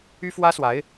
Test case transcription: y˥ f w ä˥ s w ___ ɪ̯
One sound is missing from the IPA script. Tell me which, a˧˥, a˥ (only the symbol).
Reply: a˧˥